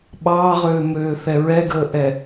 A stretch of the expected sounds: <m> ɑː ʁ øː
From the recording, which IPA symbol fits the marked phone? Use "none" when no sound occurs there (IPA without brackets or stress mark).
ɓ